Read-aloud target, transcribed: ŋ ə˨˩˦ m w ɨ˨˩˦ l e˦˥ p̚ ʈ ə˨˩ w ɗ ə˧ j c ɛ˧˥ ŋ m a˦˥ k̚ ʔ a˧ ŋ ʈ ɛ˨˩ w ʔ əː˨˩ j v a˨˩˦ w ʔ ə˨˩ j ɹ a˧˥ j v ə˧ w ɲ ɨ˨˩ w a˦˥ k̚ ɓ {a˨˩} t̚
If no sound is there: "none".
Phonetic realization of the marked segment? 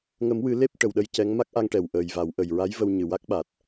a˨˩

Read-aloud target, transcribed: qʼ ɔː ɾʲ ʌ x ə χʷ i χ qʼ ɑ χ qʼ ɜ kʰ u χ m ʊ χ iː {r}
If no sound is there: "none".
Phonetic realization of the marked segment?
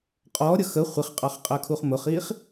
χ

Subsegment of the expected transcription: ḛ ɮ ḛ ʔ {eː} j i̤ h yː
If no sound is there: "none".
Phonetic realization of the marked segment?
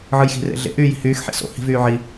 yː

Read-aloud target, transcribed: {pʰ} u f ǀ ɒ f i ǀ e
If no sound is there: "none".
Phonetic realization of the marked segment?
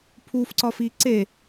pʰ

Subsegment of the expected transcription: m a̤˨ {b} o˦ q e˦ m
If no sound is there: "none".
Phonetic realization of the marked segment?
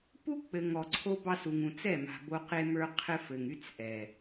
b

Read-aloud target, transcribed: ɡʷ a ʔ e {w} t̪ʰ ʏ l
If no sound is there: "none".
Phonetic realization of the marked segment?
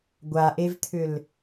v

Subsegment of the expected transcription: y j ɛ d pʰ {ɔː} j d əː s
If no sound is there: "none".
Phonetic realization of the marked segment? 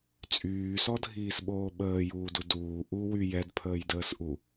əː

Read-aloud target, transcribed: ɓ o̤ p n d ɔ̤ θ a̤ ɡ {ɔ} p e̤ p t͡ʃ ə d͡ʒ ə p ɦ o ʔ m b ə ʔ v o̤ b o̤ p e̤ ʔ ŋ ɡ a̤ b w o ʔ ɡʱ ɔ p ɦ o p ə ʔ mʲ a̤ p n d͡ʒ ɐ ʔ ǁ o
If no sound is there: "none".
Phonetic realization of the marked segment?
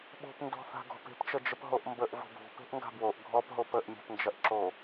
ɔ̤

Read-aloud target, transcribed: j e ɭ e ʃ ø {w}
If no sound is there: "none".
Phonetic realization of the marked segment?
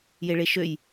j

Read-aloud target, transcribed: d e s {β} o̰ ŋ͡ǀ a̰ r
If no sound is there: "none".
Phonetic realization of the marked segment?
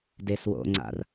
w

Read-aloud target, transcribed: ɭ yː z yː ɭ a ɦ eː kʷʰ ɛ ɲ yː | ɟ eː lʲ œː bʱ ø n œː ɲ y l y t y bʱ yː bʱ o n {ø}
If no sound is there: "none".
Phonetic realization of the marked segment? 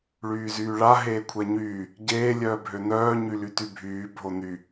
y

